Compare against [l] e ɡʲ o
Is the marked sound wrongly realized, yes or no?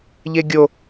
yes